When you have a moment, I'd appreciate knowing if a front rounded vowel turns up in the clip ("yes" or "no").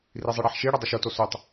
no